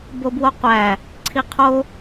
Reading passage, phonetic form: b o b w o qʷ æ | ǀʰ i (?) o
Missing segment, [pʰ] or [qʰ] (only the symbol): qʰ